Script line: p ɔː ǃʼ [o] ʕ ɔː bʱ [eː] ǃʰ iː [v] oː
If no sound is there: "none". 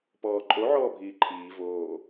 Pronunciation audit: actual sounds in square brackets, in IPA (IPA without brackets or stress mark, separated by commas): o, iː, v